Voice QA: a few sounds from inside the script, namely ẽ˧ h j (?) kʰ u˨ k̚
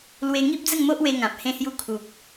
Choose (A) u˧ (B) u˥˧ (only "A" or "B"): A